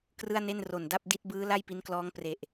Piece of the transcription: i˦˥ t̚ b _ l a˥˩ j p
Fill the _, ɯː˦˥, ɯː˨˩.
ɯː˦˥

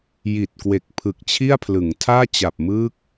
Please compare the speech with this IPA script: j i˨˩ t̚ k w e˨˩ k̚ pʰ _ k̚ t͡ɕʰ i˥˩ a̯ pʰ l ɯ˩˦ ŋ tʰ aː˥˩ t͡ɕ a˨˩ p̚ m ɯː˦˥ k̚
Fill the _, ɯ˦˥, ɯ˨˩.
ɯ˨˩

